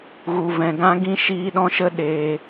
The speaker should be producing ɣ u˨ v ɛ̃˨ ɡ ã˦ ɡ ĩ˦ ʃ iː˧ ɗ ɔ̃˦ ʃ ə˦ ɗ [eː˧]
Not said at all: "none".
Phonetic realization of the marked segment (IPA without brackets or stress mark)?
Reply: eː˧